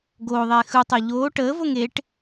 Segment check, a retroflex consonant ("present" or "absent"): present